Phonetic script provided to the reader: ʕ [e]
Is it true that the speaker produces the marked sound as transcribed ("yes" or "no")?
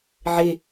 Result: yes